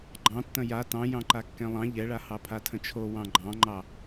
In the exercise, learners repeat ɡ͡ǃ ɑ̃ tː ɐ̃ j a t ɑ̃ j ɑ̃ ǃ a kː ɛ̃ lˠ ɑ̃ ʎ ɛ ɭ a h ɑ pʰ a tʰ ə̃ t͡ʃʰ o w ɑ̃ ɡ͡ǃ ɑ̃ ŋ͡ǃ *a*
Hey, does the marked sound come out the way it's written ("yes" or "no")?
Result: no